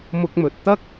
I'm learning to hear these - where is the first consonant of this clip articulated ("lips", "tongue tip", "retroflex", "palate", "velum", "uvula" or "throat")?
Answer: lips